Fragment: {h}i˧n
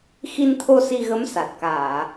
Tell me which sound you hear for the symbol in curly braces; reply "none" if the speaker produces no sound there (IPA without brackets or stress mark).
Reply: x